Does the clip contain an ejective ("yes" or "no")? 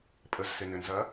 yes